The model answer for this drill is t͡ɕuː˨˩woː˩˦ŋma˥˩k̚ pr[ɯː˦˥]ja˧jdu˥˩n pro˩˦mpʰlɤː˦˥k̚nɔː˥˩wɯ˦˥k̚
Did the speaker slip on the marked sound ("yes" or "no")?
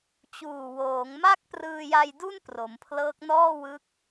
yes